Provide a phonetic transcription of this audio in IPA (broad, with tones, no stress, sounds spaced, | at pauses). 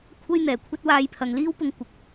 kʷʰ ɐ˥ j n̪ ɛː˨˩ kʷʰ ɐ˥ t̚ w aː˧ j pʰ ɐ˨ ŋ l iː˥ w p ʊ˧ ŋ kʷ ɪ˨ k̚